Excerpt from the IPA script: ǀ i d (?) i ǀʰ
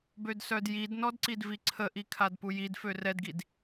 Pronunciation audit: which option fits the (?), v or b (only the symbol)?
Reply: v